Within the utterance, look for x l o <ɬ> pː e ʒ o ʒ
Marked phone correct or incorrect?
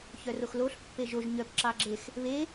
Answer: correct